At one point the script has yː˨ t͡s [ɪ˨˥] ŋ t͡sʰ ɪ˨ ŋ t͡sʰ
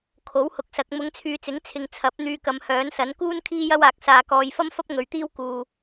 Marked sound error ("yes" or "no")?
no